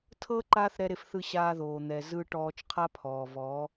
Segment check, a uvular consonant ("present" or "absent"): present